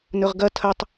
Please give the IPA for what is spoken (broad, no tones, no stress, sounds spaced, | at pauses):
n ɵ ʁ ɡ ɐ tʰ ɐ tˤ